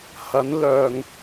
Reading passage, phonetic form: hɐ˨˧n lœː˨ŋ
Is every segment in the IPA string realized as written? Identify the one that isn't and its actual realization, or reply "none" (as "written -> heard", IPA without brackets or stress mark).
none